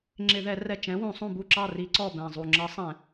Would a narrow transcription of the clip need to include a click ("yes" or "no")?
yes